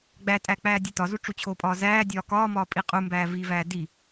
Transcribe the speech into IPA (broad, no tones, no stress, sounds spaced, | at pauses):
ɡ͡b æ tʼ æ k͡p æː dʲ e t ɒ z u ʈ͡ʂ u t͡ɕʰ o pʼ ɒː z æː dʲ ɒː k ɒː m ɒː pʼ i qʼ u m b æː v i v æː d i